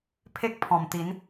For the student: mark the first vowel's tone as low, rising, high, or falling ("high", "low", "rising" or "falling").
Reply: high